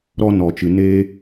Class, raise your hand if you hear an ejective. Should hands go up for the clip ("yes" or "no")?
no